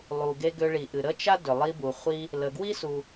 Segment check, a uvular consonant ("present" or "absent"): present